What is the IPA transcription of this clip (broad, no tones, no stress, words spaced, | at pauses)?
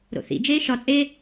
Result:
ɾo̰θḭd͡ʒeː ʃɒt͡sʼeː